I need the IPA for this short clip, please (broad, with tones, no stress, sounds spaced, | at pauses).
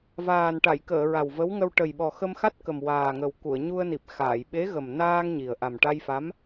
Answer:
v aː˨˩ n ʈ a˨˩˨ j k əː˨˩˨ ɹ a˨˩ w v ə˧˥ w ŋ ə˧ w ʈ ə˨˩ j ɓ ɔ˨˩ x ə˧ m x a˦˥ t̚ k ə˨˩ m w aː˨˩ ŋ ə˨˩ w k u˨˩˨ ə̯ ɲ u˧ ə̯ n i˨˩ p̚ x aː˨˩˨ j ɓ e˧˥ ɣ ə˨˩ m n aː˧ ŋ ɲ i˨˩ ə̯ ʔ a˨˩ m ʈ a˧ j f a˧˥ m